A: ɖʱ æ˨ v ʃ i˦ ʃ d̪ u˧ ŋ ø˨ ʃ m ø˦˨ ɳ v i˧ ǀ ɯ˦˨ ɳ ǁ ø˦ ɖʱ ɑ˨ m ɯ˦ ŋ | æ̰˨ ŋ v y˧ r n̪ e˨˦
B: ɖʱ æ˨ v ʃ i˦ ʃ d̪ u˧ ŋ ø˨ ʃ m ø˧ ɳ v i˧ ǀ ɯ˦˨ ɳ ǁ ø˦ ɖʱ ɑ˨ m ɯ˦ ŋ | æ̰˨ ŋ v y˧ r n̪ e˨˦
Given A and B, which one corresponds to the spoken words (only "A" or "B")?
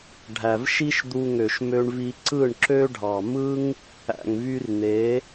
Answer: B